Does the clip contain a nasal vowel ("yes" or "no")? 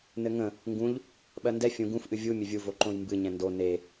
yes